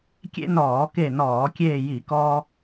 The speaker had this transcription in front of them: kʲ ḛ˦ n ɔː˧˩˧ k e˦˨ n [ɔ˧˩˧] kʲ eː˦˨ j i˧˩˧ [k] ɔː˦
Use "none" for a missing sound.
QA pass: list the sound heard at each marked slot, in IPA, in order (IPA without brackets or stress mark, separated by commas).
ɔː˧˩˧, k